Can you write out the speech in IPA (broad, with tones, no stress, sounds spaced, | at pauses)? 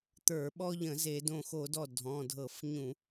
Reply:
t̪ ə˞˧˩˧ ɓ ɔ˦ ʎ ə̃˧˩˧ z e˧˩˧ d õ˧˩ x o˧˩˧ d ɔ˧˩ dʱ ɔ̃˩˧˩ dʱ ɤ˧˩˧ f ɲ ũ˧˩˧